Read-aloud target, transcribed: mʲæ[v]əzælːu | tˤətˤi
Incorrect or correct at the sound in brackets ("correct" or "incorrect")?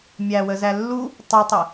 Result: incorrect